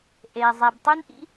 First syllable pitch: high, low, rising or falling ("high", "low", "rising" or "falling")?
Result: low